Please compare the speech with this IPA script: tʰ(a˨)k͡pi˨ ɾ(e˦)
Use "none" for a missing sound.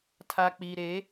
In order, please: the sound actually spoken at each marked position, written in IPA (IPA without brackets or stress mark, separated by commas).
a˨, e˨˦